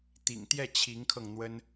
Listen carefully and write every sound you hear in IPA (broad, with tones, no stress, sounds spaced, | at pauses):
t̪ ḭ˨˩ ŋ t̪ j ɛ˥˩ t͡ɕʰ i˧˥ ŋ kʰ ɤ˧ ŋ n̪ w ə˥ n